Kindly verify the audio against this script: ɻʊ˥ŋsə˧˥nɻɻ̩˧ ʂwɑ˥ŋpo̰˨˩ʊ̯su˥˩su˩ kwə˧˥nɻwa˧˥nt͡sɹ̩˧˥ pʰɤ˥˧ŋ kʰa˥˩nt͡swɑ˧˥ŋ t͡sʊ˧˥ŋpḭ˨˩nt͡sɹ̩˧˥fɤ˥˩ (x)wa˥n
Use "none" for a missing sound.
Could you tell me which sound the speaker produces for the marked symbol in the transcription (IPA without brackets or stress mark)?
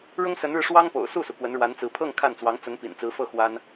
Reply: x